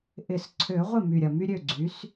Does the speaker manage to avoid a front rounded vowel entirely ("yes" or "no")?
no